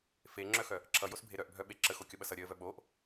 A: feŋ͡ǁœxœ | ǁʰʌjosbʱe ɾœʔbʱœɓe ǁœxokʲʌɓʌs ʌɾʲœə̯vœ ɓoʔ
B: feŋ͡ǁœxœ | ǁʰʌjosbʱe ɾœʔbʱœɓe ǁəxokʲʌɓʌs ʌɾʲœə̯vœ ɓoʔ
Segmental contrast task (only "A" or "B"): B